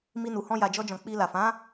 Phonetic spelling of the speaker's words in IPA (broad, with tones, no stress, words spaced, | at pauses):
mi˧nu˨ hɔ̃˧ja˨d͡ʒɔ˧d͡ʒɔ̃˨ k͡pi˧la˨ fã˨˦